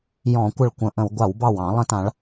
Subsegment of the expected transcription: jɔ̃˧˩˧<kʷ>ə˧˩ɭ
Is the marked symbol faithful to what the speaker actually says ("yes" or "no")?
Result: yes